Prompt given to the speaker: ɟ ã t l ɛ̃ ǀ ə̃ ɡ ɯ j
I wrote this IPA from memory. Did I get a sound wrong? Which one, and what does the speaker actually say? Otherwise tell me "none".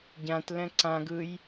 ə̃ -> ã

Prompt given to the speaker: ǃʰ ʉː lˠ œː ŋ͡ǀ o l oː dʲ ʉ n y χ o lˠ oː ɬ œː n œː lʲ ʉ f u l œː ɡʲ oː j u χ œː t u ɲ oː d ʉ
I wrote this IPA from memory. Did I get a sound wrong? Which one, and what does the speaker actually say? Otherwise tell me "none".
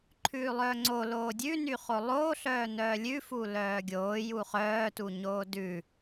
none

